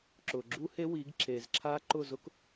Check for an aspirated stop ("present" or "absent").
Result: present